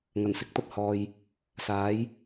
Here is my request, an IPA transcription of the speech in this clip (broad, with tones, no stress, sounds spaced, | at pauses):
ŋ ɐ˨˩ n s ɪ˨ k̚ t̪ ɐ˥ p̚ h ɔː˧ j | s aː˨˥ j